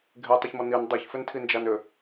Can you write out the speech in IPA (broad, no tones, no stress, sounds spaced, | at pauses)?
ɡʱ e tˤ ʏ ç m ɔ n i n dˤ ɛ ç f ʏ n tʰ i n d͡ʒ a n ʏ